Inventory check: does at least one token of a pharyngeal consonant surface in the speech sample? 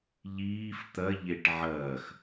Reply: yes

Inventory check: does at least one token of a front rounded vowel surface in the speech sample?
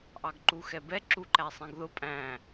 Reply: no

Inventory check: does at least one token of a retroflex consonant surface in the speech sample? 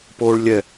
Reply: yes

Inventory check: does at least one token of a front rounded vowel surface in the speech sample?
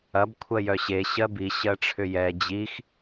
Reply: yes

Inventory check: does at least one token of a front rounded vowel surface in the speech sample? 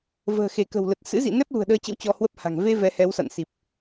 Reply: no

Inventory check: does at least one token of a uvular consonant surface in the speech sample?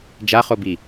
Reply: yes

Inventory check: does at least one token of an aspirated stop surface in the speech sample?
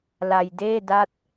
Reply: no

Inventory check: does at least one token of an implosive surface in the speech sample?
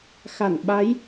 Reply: yes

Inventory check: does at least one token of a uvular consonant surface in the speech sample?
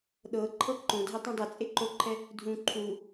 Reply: no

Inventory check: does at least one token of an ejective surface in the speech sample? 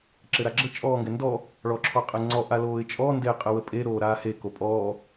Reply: yes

